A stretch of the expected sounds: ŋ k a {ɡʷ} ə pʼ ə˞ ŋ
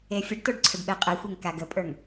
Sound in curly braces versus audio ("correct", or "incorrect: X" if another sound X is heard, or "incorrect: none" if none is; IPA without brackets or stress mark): incorrect: ɡ